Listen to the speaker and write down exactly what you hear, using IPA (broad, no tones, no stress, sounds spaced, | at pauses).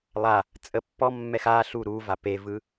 lˠ a | t͡sʼ ə pː ɔ mː ɛ x a ɬ u ɾ u v a p e v ɯ